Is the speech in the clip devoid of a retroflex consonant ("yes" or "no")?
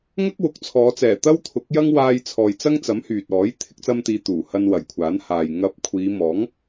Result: yes